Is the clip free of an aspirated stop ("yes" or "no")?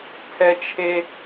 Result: no